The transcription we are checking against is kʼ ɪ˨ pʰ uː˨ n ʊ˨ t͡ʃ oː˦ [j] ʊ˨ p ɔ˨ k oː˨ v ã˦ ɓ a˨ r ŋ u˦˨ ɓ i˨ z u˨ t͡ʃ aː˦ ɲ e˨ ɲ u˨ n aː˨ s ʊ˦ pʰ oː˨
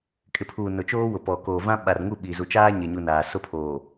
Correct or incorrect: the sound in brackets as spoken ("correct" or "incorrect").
incorrect